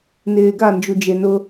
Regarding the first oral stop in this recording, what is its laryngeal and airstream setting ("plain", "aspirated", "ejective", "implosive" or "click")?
plain